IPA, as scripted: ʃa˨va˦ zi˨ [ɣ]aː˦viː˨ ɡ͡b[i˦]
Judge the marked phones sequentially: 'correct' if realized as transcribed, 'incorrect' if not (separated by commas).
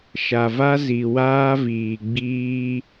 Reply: incorrect, incorrect